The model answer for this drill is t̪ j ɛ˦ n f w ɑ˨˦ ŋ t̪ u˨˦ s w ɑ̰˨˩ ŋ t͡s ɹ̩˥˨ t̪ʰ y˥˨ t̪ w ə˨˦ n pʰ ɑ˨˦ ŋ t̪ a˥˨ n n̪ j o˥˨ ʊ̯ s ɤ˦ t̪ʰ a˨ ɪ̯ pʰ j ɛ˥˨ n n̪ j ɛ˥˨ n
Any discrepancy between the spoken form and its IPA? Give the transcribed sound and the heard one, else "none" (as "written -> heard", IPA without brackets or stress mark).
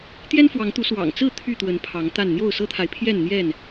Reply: none